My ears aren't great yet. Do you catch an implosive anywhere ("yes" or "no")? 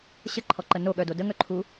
yes